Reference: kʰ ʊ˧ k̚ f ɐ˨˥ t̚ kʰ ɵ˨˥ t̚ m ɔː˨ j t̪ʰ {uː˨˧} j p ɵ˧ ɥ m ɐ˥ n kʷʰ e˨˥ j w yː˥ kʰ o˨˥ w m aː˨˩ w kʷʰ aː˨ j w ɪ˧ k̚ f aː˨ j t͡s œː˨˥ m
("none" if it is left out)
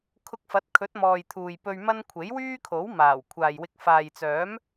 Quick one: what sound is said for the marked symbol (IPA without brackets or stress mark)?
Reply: uː˨